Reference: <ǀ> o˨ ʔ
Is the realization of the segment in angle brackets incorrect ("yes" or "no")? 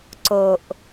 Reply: no